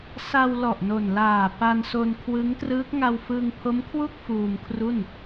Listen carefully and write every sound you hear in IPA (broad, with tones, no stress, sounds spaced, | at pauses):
s a˧ w l ɔ˨˩ ʔ n o˨˩ n l aː˨˩ p a˧ n s o˧ n kʰ w ɯ˦˥ ŋ t r ɯː˦˥ k̚ ŋ a˧ w f ɯ˧ ŋ pʰ o˦˥ m kʰ w u˥˩ k̚ f uː˧ m kʰ r u˥˩ n